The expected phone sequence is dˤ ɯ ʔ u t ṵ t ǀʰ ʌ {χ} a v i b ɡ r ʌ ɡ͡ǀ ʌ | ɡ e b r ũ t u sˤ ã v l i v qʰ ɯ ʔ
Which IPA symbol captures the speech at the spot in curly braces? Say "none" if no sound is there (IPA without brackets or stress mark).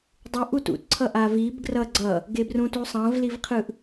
ʔ